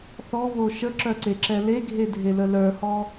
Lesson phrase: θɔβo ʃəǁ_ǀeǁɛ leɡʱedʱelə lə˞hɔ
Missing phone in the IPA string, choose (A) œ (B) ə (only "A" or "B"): A